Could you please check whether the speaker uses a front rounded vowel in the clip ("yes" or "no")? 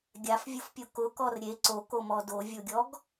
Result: no